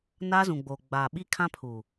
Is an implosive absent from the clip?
no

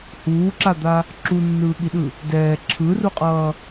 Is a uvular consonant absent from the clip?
no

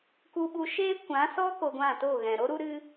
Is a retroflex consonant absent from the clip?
yes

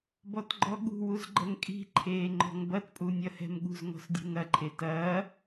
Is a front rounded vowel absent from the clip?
yes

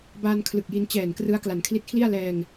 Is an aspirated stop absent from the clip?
no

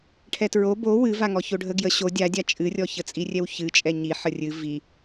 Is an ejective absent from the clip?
no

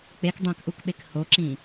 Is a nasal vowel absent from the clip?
no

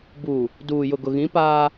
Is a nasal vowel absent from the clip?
no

